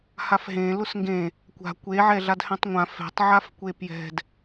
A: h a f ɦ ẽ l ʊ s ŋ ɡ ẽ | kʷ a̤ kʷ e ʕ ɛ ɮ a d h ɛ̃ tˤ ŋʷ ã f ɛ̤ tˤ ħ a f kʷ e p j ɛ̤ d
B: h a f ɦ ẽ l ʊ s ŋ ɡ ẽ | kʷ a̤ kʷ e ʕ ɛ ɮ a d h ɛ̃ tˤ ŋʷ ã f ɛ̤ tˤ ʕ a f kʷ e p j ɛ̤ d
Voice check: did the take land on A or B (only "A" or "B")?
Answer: B